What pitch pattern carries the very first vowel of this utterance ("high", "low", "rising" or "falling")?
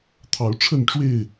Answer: rising